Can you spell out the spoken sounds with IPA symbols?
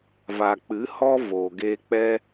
v a˨ k͡p ɨ˨˦ h ɔ˦ v oː˨ ɡ eː˧ k͡p ɛ˦

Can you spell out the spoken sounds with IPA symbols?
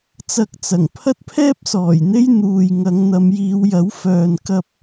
t͡s ɐ˧ k̚ t͡s ɐ˨˩ ŋ pʰ ɐ˥ t̚ pʰ ɛː˥ p̚ s ɔː˨˩ j n̪ e˥ j n̪ uː˨ j ŋ ɐ˨˧ ŋ n̪ ɐ˨˧ m j iː˨˧ w j ɐ˨˥ w f œː˨ n k ɐ˧ p̚

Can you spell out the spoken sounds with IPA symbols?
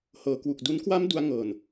h ɤː˩˦ k w u˨˩ k̚ d u˦˥ n k w a˦˥ m d u˧ a̯ ŋ ɤː˨˩ n

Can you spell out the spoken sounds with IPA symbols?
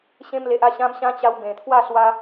ɕ ẽ˧ m l e˨ ʔ a˧ ɕ ã˧ m ɕ ã˧ t͡ɕ a˧ w b ẽ˨˩ t̪ʰ w a˥˧ s w a˧

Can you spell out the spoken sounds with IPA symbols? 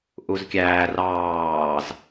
ʔ u z kʲ æː r ɑː z

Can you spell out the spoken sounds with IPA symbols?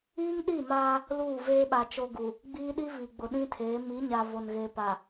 iː˦ ŋ ɗ i˦˨ m aː˦ | l uː˦˨ v eː˦ ɓ a˨ t͡ʃ o˦ ɡ u˨ | ɡ͡b iː˦ ɗ i˦ v i˨ ɡ͡b ʊ˨ ɗ ĩ˦ tʰ eː˨˦ m i˨˦ ɲ a˨ v o˨ n ɣ e˨ p a˨

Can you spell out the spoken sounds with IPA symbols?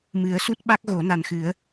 m ɨ˨˩˦ ə̯ s u˦˥ t̚ ɓ a˦˥ k̚ ɣ o˨˩˦ n a˨˩ n x ɨ˨˩˦ ə̯

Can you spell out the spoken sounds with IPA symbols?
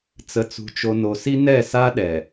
t͡s ə˨ t͡s ṳ˨ t͡ʃ o˨ n o˨ s i˦ n ɛ˦˨ s a˦ ɗ ɛ˨

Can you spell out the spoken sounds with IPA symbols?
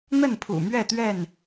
n̪ ə˥˨ n pʰ ṵ˨˩ m ɥ ɛ˥˨ t̪ ɥ ɛ˥˨ n

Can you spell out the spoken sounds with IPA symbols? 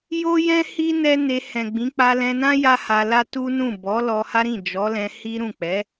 j o˦ j ɛ̃˦ h i˦ n ɛ˦ n e˧ h ɛ̃˨ ɡ͡b ĩ˨˦ k͡p a˧ l ɛ̃˧ n ã˦ j a˦ h a˧ l a˦ t u˦ n ũ˦˨ b ɔ˨˦ l ɔ˧ h a˦ ɾ ĩ˦˨ d͡ʒ ɔ˨˦ l ɛ̃˧ h i˦ ɾ ũ˦˨ k͡p ɛ˨˦

